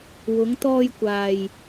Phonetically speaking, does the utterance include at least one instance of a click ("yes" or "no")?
no